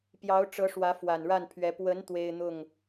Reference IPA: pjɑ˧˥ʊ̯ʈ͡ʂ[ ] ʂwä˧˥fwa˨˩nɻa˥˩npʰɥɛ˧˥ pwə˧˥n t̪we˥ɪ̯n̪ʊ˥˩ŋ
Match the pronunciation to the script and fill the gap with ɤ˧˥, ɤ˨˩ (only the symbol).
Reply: ɤ˧˥